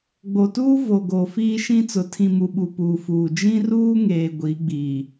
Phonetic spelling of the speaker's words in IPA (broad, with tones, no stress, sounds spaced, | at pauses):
ɡ͡b o˨ t uː˦ v o˨ ɡ o˨ f iː˦ ʃ ĩ˦ t͡s ʊ˨ tʰ ĩ˨ m u˨ ɓ u˨ p uː˨ f uː˨ d͡ʒ ĩ˦ r uː˦ ŋ eː˨ ɡʷ i˨˦ ɡ͡b i˨